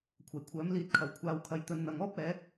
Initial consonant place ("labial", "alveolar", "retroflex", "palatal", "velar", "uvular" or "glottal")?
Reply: velar